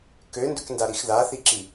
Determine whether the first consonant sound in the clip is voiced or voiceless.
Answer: voiceless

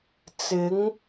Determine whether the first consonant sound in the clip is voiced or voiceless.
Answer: voiceless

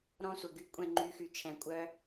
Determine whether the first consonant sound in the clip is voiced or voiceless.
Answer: voiced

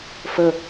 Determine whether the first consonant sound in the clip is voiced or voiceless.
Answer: voiceless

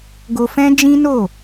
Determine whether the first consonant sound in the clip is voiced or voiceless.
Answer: voiced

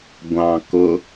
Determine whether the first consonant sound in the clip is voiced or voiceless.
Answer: voiced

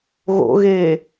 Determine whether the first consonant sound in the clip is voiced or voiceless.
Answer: voiced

